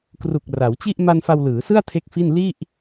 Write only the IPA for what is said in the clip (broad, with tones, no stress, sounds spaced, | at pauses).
k r u˨˩ k̚ r a˩˦ w t͡ɕ i˥˩ ʔ m a˧ n f a˧ w l ɯː˩˦ s ɯ˥˩ a̯ tʰ e˥˩ k̚ f i˥˩ n l i˥˩ ʔ